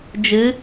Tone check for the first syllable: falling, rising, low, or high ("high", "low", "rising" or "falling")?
rising